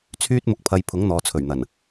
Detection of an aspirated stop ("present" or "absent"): present